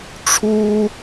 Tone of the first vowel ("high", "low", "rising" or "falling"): high